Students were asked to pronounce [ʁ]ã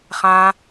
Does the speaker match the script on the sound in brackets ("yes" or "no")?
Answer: no